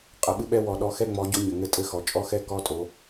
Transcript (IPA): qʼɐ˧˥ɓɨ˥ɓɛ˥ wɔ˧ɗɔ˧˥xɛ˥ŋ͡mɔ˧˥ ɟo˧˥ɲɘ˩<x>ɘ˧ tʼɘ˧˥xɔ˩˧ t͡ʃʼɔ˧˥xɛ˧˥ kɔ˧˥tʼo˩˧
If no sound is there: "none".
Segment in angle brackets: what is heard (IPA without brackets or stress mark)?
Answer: ŋ